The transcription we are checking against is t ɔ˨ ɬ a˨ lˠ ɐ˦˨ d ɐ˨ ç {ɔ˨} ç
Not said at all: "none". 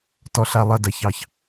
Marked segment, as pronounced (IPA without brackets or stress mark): ɑ˨